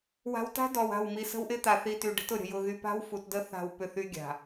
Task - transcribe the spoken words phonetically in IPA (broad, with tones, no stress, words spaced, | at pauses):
wa̤˨wta̤˦ dɔ˨wa̤˦˨w mi˨sə̤˦wʔɪ˦t̪a˨ θi˨ty˨ ɖə̤˦tʊ˦˨ɾʲə̤˨ jʊ˨ɣy˨pa̤˦w fu˨tdə˦ θa̤˦˨wpʏ˦˨θy˦ ɡʲa̤˨